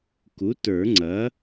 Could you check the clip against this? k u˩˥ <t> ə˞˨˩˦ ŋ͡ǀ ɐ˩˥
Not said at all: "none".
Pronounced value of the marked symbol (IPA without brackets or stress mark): t